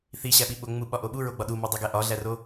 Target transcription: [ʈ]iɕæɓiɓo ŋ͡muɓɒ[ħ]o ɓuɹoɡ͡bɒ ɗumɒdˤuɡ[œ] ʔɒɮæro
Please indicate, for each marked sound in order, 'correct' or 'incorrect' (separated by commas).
incorrect, incorrect, incorrect